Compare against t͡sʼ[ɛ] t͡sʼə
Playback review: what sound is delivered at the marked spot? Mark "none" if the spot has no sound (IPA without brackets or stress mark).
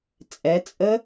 ɛ